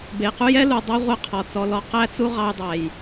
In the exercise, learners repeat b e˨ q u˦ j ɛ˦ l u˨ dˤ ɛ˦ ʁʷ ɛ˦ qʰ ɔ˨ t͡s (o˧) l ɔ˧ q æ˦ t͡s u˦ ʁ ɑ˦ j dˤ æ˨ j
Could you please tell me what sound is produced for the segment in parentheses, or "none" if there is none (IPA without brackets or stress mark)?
ɔ˧